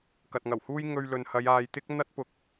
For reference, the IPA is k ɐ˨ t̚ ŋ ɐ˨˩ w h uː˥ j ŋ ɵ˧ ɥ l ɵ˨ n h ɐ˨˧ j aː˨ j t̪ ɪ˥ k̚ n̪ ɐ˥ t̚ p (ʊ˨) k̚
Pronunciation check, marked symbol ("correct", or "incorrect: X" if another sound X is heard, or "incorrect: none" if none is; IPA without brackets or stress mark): correct